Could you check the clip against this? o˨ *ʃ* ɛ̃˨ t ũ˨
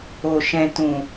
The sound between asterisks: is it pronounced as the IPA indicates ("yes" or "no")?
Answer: yes